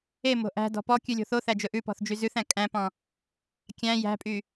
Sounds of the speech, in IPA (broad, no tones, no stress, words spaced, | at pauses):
emo̤ ʔæ̤dɔ̤ pɔ kʲʉlʲo̤θoθæ d͡ʒɵʔʉpɔ̤θ d͡ʒyzʉθæ̃ kʼæ̃pɔ̃ | kʲæ̃ jæ̤pʼy